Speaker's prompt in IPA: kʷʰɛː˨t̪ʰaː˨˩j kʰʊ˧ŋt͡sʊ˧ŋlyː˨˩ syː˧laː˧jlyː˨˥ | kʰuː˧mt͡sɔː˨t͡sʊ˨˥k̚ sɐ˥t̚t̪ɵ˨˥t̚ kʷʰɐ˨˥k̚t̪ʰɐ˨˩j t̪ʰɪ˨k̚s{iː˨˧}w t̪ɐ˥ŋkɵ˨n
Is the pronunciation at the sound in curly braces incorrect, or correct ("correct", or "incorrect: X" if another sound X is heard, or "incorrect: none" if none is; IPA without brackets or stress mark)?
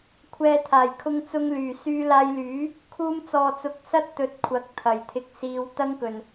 correct